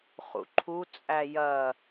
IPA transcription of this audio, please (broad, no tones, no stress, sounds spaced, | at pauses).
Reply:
χ ṵ ǃʰ u t͡sʼ æ j ɐ